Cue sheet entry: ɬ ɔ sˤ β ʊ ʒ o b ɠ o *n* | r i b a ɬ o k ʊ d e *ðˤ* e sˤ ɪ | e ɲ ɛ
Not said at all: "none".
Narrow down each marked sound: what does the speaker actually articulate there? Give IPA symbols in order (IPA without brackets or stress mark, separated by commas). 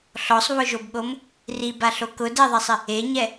m, ðˤ